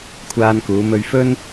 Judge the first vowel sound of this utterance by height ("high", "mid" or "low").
low